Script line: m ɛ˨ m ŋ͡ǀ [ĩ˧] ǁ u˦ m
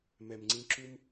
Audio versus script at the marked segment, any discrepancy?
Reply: no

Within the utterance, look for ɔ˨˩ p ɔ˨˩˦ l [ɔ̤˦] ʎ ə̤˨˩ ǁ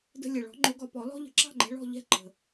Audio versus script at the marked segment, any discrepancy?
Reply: no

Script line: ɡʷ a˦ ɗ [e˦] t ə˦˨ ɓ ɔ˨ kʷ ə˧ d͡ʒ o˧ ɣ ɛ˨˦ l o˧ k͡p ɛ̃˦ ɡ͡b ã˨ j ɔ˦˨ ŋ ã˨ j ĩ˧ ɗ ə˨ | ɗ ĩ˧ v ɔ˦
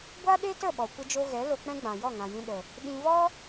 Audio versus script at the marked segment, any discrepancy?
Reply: no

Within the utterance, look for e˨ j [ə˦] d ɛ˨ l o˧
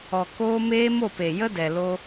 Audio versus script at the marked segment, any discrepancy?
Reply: no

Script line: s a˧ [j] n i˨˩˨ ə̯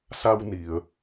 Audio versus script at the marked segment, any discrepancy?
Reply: yes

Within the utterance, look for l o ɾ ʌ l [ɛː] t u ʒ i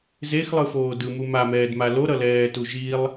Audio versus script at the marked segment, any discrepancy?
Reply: no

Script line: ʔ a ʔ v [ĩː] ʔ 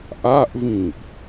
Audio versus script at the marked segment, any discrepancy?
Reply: no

